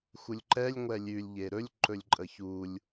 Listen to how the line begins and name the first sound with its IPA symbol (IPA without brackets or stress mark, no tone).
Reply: x